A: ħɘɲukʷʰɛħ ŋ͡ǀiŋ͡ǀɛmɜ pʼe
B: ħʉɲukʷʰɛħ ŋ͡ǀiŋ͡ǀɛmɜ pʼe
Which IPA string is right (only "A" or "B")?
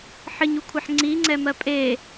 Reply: A